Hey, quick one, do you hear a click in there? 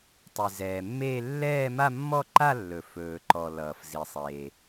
yes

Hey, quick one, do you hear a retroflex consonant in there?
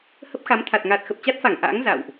no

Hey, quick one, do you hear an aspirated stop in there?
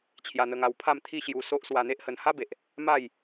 yes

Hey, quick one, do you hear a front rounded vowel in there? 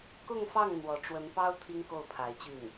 yes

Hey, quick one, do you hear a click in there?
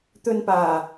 no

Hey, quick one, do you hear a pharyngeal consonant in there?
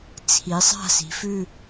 no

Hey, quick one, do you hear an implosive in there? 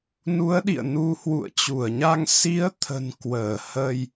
yes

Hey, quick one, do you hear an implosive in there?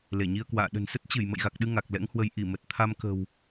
yes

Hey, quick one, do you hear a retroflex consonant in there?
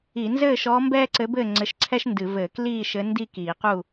no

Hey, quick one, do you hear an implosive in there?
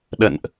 yes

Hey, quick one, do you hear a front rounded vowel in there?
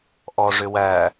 yes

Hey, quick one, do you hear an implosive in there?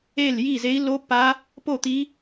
no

